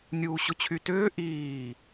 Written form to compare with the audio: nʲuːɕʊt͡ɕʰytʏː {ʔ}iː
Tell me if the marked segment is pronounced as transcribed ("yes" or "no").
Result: yes